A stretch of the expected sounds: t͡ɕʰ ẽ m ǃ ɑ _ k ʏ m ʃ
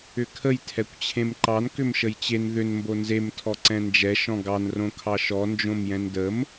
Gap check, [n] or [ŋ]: n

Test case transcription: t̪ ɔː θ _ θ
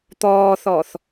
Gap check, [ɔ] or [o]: ɔ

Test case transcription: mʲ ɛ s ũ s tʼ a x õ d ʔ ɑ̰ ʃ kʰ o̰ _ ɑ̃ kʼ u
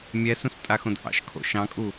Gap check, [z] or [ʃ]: ʃ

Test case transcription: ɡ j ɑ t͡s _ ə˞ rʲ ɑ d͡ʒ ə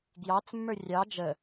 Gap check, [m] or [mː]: mː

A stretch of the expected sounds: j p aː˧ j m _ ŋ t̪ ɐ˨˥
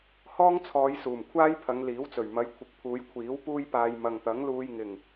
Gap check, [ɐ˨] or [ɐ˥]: ɐ˨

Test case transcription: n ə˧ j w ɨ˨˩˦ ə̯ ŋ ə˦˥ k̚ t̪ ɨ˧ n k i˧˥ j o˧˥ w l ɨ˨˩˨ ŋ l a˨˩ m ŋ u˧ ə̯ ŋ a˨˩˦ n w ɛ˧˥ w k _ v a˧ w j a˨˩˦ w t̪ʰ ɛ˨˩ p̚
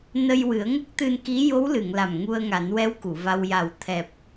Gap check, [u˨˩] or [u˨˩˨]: u˨˩˨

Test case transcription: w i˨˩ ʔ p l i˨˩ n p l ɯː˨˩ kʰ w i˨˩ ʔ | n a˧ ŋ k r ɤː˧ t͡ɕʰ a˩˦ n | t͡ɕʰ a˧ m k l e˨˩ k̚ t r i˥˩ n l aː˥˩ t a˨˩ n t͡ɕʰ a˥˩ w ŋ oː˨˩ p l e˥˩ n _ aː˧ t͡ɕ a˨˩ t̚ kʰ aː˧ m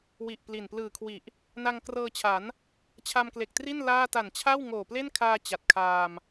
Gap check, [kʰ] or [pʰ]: kʰ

